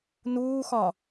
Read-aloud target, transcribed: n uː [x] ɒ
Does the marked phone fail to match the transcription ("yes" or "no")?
no